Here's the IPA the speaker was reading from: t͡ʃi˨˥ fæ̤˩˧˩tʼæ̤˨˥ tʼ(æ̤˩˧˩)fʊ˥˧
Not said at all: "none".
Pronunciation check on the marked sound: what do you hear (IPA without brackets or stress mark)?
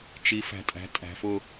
æ̤˩˧